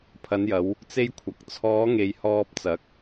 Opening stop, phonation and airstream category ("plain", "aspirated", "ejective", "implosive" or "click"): aspirated